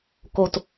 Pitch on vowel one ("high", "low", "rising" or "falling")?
low